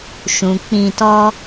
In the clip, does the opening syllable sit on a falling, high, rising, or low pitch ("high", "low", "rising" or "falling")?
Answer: low